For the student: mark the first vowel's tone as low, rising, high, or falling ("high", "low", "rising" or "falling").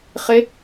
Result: rising